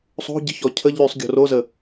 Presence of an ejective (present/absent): absent